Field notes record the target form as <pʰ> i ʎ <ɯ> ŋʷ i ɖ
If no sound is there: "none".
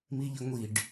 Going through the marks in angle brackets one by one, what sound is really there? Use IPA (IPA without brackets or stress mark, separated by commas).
m, ə